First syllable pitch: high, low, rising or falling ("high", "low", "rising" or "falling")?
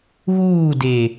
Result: falling